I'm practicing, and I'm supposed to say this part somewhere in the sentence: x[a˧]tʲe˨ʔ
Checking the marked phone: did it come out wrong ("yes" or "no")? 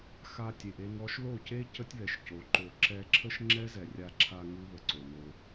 no